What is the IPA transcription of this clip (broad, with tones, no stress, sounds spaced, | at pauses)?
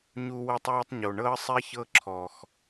ɲ u˧ w ɤ˦ tˤ w e˦ tˤ ɲ o˨ ɳ ɤ˦ ə̯ sˤ ɛ˦ ç ɤ˦ ǁʰ ɔ˨ x